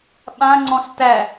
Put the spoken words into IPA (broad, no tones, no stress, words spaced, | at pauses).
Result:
ɓãŋ͡ǀɔ̃ɬ tæ